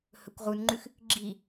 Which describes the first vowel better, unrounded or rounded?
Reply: rounded